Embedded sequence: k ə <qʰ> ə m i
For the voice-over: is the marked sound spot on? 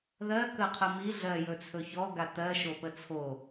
yes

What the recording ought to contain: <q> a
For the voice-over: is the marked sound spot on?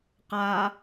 yes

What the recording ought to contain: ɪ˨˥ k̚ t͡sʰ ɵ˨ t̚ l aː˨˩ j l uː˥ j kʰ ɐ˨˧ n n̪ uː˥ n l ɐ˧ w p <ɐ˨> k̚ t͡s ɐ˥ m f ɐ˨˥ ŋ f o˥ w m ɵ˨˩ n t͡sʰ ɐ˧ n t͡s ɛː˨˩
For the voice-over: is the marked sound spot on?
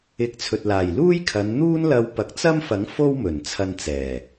yes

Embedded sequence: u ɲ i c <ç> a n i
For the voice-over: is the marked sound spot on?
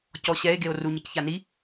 yes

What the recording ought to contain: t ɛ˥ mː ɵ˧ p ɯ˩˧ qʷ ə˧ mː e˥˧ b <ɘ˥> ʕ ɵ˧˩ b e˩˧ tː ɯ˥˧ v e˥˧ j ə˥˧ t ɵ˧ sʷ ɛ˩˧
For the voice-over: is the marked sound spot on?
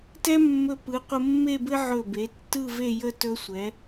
yes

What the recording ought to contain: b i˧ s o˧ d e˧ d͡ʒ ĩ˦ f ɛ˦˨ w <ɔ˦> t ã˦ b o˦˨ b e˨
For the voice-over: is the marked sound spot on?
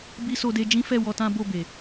no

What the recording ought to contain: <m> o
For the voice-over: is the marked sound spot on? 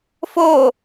no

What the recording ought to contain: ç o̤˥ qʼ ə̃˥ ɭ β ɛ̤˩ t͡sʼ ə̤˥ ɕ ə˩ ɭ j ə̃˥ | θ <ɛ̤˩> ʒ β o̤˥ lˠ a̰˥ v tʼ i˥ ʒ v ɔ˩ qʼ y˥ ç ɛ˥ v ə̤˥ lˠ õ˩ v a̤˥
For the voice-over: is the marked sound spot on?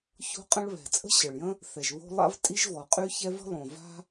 no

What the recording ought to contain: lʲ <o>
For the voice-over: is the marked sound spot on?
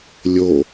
yes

